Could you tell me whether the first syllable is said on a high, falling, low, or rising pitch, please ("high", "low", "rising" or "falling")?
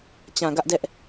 low